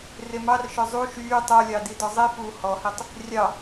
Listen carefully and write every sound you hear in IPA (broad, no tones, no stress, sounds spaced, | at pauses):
r e m ɑ r ʃ œ zˤ u ʃ yː tˤ o lʲ ɑ d i d ɔ zˤ i f uː h ɔ h i tˤ | rʲ ɑ